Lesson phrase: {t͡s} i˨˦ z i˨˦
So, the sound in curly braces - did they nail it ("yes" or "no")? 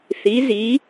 no